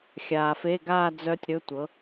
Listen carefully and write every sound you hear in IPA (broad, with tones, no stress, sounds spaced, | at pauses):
xʲ aː˨ f e˧˥˧ ɡ aː˥˧ d͡z œ˦˥ tʲ ɾ ɵ˧˥˧ tʷ ɤ˨˥